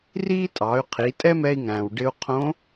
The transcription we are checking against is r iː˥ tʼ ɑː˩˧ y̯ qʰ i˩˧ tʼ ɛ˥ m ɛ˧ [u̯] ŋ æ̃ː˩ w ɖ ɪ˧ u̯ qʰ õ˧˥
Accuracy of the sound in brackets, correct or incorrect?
incorrect